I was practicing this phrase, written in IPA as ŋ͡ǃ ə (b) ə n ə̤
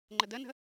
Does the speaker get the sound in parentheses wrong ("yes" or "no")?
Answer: yes